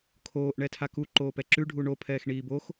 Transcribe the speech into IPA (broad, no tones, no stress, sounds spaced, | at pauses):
kʰ oː ʔ ɳ ɛ tʰ a k u ǃ oː p ɛ ǁ ʉ ɖʱ u ɳ o pʰ ɛː x ɳ iː b o x